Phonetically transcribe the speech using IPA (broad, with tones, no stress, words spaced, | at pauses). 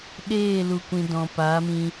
ɗeː˦˨lu˨kʷĩ˨ dɔ̃˨ paː˨˦mĩ˧